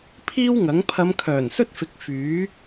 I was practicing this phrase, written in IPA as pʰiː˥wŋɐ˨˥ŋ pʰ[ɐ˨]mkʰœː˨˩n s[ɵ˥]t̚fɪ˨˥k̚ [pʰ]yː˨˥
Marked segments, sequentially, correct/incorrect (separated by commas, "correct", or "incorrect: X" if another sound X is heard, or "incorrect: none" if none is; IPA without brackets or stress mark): incorrect: ɐ˨˧, correct, incorrect: f